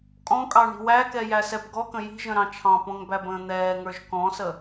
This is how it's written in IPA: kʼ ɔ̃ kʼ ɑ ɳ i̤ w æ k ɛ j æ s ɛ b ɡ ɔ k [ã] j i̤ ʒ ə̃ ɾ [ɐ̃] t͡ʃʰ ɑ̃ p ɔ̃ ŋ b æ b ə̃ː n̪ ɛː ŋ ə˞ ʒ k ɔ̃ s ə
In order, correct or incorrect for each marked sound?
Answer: incorrect: ə̃, incorrect: ɑ̃

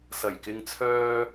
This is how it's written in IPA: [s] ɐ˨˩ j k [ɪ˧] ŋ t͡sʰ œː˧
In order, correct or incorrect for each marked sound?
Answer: correct, correct

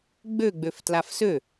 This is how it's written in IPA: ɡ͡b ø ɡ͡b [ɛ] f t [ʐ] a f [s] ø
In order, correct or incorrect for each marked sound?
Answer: incorrect: ø, incorrect: l, correct

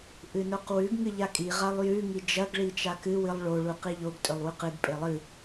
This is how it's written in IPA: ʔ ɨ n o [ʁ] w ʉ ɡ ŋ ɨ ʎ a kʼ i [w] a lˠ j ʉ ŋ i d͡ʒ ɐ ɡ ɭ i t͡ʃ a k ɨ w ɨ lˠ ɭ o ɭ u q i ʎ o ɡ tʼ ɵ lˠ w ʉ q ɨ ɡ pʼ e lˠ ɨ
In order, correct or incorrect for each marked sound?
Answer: incorrect: q, incorrect: ʁ

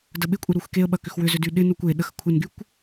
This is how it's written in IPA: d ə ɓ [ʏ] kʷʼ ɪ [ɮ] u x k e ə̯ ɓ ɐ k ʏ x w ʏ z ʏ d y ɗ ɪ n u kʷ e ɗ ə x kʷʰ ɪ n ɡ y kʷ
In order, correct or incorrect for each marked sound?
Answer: incorrect: ɪ, incorrect: ɾ

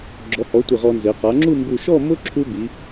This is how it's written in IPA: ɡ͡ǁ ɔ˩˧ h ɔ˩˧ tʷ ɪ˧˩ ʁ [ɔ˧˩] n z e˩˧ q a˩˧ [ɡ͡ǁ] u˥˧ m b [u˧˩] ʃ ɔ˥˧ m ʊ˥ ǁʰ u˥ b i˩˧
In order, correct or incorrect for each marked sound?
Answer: incorrect: ɔ˧, incorrect: ŋ͡ǁ, correct

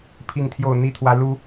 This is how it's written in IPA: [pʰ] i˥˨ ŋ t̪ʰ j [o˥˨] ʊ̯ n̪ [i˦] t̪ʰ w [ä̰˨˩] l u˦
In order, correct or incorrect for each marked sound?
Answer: correct, correct, correct, incorrect: ä˦

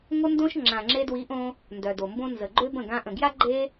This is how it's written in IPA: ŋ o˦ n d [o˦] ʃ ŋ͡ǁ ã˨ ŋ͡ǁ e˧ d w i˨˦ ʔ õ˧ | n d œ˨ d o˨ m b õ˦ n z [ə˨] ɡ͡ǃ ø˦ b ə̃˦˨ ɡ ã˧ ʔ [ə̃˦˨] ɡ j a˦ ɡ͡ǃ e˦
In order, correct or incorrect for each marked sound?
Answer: incorrect: õ˦, correct, incorrect: ə̃˨

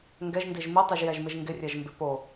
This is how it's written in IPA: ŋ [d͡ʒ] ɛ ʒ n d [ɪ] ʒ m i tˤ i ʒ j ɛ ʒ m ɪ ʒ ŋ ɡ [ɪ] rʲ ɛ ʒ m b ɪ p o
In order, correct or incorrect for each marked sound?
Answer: incorrect: ɡ, incorrect: i, correct

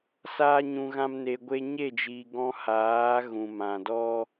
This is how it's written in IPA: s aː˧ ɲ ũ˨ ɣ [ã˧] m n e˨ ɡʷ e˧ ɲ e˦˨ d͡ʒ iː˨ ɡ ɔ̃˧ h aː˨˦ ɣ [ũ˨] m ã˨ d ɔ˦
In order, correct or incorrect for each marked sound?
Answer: correct, correct

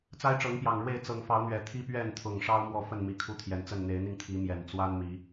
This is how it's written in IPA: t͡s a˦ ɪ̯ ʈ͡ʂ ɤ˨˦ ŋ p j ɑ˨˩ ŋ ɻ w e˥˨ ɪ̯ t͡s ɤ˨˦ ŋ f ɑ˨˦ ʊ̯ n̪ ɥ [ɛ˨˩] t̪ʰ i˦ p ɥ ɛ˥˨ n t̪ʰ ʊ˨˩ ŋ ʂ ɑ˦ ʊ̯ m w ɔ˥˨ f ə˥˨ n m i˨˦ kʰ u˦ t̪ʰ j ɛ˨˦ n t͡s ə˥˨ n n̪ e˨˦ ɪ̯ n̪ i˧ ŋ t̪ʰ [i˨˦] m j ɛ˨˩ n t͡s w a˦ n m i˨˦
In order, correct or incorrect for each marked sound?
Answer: correct, correct

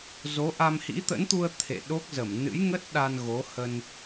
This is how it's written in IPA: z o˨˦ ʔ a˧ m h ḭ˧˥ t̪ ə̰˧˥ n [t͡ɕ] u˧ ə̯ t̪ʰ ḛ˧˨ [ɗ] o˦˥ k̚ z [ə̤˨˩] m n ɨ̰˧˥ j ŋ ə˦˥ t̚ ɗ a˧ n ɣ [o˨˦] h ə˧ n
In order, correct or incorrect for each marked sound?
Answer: incorrect: t̪, correct, incorrect: ə˧˩, correct

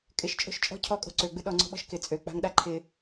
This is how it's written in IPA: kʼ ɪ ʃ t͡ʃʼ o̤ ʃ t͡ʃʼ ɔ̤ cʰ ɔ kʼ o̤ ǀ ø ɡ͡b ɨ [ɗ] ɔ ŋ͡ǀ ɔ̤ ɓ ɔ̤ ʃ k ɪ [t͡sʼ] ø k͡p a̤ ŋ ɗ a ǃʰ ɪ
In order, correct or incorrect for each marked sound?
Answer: correct, correct

